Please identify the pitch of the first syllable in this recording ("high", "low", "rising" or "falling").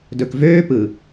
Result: low